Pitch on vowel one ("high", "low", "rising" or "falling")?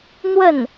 falling